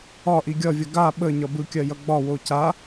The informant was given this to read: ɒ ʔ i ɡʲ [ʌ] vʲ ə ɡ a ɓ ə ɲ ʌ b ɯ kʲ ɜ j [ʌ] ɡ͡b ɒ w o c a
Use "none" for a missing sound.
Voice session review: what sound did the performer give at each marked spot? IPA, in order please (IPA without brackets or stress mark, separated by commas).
ʌ, ʌ